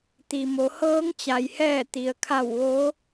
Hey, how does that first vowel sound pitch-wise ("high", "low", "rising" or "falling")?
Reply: low